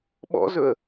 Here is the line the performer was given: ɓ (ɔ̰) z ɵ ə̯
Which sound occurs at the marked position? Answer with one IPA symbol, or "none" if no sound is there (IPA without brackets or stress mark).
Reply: ɔ̰